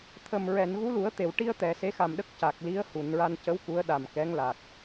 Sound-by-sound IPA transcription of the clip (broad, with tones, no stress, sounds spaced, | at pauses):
t̪ʰ ə˨˩ m ɹ ɛ˨˩˨ n ɣ u˧˥ l u˨˩˦ ə̯ t̪ e˨˩˨ w ʈ i˧ ə̯ t̪ ɛ˨˩˨ s e˧˥ x a˨˩ m ɗ ə˦˥ k̚ c a˨˩ k̚ l i˧˥ ə̯ h u˨˩˨ n ɹ a˧ n c ə˧˥ w k u˧˥ ə̯ ɗ a˨˩ m k ɛ˧˥ ŋ l a˨˩ k̚